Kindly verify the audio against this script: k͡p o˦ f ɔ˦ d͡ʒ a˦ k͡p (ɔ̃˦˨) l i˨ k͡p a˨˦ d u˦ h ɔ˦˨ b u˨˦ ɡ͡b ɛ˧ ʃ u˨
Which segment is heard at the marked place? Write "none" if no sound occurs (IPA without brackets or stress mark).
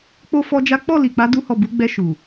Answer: ɔ˦˨